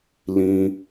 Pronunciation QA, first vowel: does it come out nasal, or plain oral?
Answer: nasal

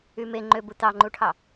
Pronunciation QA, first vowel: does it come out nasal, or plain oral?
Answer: oral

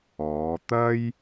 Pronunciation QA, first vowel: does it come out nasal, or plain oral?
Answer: oral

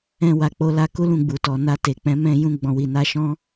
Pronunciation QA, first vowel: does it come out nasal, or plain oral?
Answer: nasal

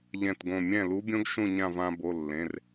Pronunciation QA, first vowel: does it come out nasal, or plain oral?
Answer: nasal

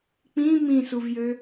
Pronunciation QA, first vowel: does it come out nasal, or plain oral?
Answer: nasal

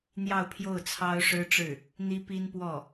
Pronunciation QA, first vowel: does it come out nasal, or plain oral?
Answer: oral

